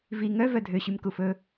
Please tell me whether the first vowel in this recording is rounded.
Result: no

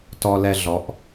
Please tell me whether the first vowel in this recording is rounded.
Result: yes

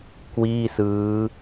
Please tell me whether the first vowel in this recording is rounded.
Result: no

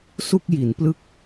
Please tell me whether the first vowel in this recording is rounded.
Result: yes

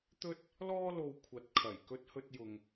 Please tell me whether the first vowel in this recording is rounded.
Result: yes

